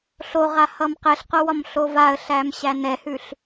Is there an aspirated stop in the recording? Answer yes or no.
no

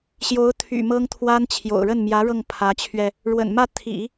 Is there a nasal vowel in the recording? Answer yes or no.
no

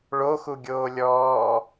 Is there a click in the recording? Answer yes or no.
no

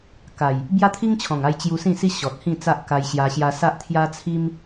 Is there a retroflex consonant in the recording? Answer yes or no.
no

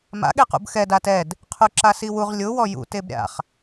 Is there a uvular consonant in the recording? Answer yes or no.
yes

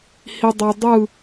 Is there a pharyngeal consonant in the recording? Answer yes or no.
no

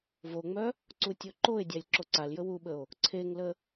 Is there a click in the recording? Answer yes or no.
yes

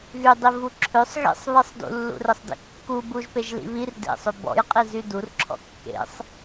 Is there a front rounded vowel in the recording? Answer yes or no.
yes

